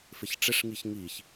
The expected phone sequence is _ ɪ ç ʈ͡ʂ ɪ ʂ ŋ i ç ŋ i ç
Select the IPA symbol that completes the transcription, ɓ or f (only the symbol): f